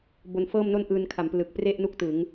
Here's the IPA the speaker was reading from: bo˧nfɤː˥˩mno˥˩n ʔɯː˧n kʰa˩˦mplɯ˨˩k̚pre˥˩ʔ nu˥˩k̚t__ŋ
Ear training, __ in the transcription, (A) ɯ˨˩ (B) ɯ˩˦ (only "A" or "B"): B